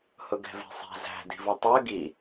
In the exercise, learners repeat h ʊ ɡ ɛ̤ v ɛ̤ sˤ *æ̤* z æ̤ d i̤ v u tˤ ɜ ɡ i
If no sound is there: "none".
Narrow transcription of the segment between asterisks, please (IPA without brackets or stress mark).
æ̤